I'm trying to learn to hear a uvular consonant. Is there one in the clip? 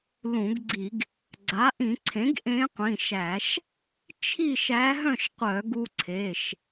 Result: yes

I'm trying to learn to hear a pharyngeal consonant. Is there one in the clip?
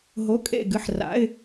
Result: yes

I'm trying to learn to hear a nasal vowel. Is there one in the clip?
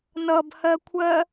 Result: no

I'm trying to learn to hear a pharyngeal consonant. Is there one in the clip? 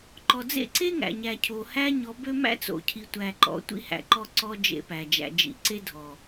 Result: no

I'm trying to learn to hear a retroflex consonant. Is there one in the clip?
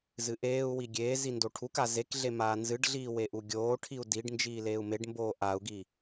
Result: yes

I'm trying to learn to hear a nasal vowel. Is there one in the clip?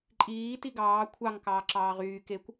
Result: no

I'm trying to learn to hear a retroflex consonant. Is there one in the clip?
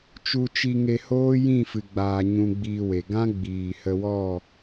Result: no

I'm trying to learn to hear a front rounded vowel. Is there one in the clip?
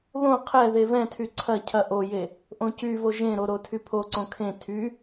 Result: yes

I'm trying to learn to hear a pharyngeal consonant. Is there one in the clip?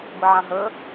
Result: yes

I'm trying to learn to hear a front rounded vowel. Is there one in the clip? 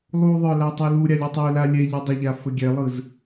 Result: no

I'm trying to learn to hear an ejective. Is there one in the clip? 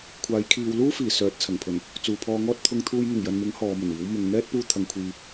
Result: no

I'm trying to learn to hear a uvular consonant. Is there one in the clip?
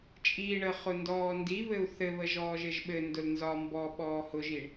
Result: yes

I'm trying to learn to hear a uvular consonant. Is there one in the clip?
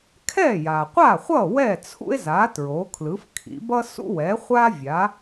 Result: yes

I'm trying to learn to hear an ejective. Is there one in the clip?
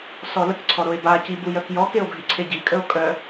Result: yes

